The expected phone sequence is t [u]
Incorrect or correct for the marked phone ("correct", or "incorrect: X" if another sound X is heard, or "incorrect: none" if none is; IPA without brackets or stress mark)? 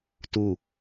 correct